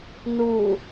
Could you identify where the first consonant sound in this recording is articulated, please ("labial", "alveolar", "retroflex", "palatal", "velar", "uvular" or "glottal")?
alveolar